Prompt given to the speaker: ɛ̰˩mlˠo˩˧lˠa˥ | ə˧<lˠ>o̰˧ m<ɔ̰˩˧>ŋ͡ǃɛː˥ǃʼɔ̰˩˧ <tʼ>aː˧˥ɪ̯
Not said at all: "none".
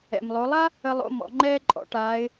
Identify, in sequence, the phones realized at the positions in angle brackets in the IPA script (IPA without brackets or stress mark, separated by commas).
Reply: lˠ, ɔ̰˩˧, ʈ